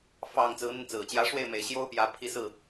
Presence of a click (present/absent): absent